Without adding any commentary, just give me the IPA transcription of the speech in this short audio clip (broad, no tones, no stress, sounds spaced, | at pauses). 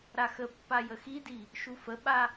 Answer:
ɾ a x ə pː a j ə x i d i | ʃ u f ə ɓ a